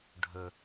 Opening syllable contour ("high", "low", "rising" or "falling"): low